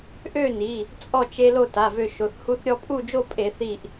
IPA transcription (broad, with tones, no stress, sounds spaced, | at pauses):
ʔ ø˥˨ n i˩˧˩ | t͡sʼ ɔ˥˨ t͡ʃ e˦ l o˥˨ t a˩˧˩ v ø˧˩ ʃ o˩˧˩ θ h u˦ θ ɾʲ ɔ˦ pʼ u˥˨ d͡ʒ o˥˨ pʼ e˧˩˧ θ i˧˩ ʔ